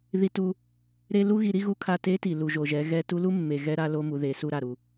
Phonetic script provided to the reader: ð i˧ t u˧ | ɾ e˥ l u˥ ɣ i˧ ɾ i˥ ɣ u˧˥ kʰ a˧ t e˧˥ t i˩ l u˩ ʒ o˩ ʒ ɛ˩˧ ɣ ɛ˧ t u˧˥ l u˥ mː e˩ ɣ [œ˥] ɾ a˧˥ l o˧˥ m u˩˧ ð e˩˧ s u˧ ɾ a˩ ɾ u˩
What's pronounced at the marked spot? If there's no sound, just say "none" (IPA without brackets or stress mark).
ɛ˥